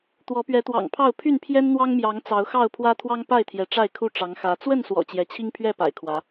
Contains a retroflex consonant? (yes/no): yes